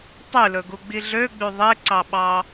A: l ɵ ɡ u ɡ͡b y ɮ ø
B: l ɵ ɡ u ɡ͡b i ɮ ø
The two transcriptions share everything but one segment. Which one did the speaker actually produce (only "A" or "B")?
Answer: B